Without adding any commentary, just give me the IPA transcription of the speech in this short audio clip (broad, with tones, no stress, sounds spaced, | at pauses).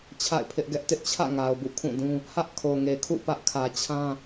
t͡ɕʰ a̰˦˨ ɪ̯ pʰ ɪ˦ ʔ ɡ ɛ˦ ʔ t ɪ˦ ʔ t͡ɕʰ ä̰˦˨ ŋ a˨ ʊ̯ b ṵ˦˨ kʰ ũ˦˨ d ũ˦ | h ä˦ ʔ kʰ o˨ ŋ e˨ kʰ ṵ˦˨ p ä˦ ʔ kʰ ä˨ t͡ɕʰ ã˦